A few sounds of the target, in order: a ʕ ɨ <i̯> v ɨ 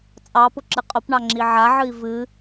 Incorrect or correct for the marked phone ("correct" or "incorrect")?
correct